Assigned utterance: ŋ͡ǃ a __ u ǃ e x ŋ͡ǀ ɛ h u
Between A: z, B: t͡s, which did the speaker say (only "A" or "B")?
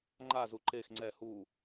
A